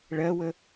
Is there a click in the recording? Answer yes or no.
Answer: no